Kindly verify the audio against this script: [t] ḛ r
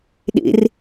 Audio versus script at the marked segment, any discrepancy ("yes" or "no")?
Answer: yes